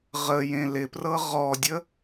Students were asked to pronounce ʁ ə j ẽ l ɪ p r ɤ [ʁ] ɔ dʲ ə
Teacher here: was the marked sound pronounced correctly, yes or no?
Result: yes